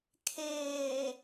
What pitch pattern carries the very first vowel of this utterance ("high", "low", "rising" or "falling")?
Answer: low